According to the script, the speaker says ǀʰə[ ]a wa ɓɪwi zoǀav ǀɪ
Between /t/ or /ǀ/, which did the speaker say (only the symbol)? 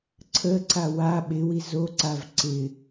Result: ǀ